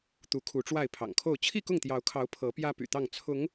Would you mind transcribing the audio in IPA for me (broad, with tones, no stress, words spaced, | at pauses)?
t̪u˨˦kʰu˨˦ʈ͡ʂwa˥˨ɪ̯ pʰɑ̰˨˩ŋkʰo˥˨ʊ̯ t͡ɕʰi˥˨kʊ˥˨ŋt̪jɑ˨˦ʊ̯kʰɑ˨˦ʊ̯ pʰɤ˨˦pjä˦ py̰˨˩t̪ɑ˥˨ŋ t͡sʰʊ˨˦ŋ